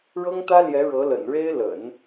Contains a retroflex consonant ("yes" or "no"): yes